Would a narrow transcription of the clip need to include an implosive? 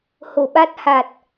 yes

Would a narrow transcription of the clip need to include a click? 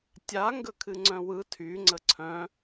yes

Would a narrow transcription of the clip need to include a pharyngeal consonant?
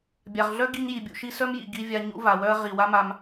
no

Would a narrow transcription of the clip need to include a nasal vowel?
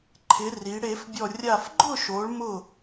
no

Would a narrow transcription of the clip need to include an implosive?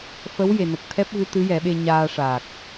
yes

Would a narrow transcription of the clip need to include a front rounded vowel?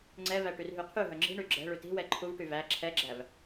yes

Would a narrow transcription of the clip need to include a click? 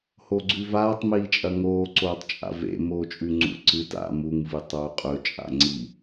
yes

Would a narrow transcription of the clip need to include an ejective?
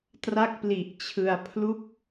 no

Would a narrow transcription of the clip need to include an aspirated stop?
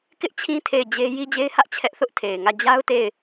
yes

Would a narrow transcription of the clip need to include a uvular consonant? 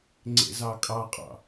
yes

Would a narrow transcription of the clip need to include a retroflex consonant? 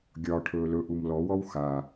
yes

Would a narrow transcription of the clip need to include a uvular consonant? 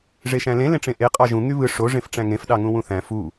yes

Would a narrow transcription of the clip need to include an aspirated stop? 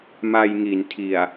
yes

